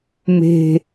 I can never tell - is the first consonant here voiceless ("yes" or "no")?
no